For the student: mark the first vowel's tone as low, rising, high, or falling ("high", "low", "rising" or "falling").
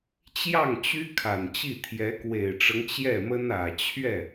falling